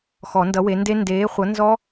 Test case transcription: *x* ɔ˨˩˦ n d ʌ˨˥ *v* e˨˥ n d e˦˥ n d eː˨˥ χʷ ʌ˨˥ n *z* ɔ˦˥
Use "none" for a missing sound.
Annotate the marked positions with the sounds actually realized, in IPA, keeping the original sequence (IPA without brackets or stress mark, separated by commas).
x, w, z